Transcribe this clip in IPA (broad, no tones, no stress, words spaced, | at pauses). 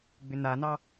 ɡ͡bʏnanɑ